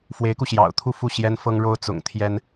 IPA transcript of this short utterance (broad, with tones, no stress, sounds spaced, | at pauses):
f w e˧˥ ɪ̯ k u˧ ɕ j ɑ̰˨˩ ʊ̯ t̪ʰ u˥˧ f u˥˩ ɕ j ɛ˥ n f ɤ˥ ŋ ɻ o˥ ʊ̯ t͡s ʊ̰˨˩ ŋ t̪ʰ j ɛ˥ n